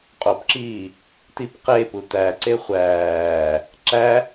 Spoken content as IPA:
qʼ o p ǁ iː | t i p q e p u t æ ǀ e χʷ æː | ǁ æ

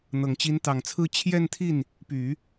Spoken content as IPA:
n̪ ɤ˨˩ ŋ t͡ɕ i˧˥ n t̪ ɑ˨˩ ŋ t͡sʰ ɹ̩˥˧ t͡ɕʰ j ɛ˥˧ n t̪ʰ i˥˩ n | p y˨˩˦

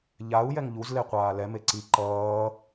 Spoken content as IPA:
ʎ a u̯ j ɛ ŋ ʎ u z l e qʷ aː l ɛ m e ǀ i ǃ ʌː

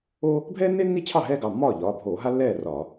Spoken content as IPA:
o˥ | bʱ ɛː˥ nː e˥ nː i˥˩ t͡ɕʰ ɑ˥˩ ɦ ɛː˥ ɡ ɑ˩˧˩ mː ɒː˥˩ ʎ ɒː˩˧˩ bʱ oː˧˩˧ ɦ a˥ lː ɛː˥˩ r ɒ˧˩˧

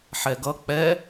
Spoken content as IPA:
ħ ɛ ɡ ʌ k͡p ɛ

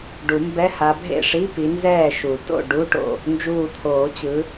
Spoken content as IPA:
ɖ u˨˩˦ m b ɛ˧˥˧ h a˨˦ bʱ ḛ˥˩ ʂ i˧˥˧ p i˨˦ n z ɛː˥˩ ʃ u˨˩˦ t o̰˥˩ ɖ u˧˥˧ ʈ o̰˥˩ | n d͡ʒ uː˧˩ t̪ʰ oː˨˩˦ t͡ɕ ɯ˨˦

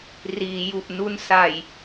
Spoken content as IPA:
r iː˩˦ j u˨˩ ʔ n u˦˥ n s a˨˩ j

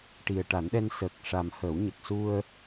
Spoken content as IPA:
ʈ i˨˩ ə̯ ʈ a˨˩˦ n ɗ ɛ˧ n s əː˨˩ k̚ ʂ a˨˩ m h ə˨˩˦ w ɲ ə˨˩ k̚ s u˧ ə̯

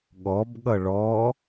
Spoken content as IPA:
ɠ ɔ b ɠ ʌ ɭ ɔ

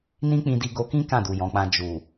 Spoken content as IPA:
n ĩ˦ k͡p ĩ˧ d i˧ ɡ o˧ k ĩ˦ k ã˦˨ d u˨ j ɔ̃˨ k͡p ã˧ d͡ʒ u˨

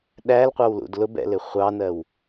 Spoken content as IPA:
ɗ æ l qʷ ɑ w l ṵ d l ʊ b ɛ̰ l ɪ χʷ ɑ n ɜ w

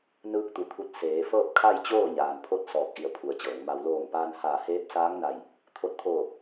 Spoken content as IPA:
n ɯː˧ k̚ t̪ u˩˧ t̪ʰ u˧˩ t̚ s eː˩˧ f ɤː˥˨ p̚ kʰ a˥˨ j t͡ɕ oː˥˨ ɲ aː˩ n pʰ o˥˨ t̚ s ɔː˧˩ k̚ ʔ i˧˩ ə̯ pʰ u˩ ə̯ t͡ɕ ɤː˩˧ ŋ m a˧ w l oː˧˩ ŋ p aː˧ n h aː˧˩ h eː˧˥ p̚ s aː˧˥ ŋ n a˧˩ j | t̪ʰ o˧ t̚ t̪ʰ oː˧˩

